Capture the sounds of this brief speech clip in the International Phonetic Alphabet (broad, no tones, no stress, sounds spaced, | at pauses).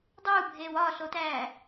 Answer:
dˤ uː bʱ eː w ɒ ɬ o t æː